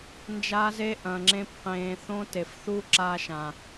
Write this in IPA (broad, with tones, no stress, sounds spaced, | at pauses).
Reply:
n d͡ʒ aː˧ z e˧ ʔ ɐ̃ː˨ ŋ͡ǁ ẽ˧ p q ẽː˨ θ õ˧ t e˨ f θ u˦ ǁ aː˧ ʃ ã˨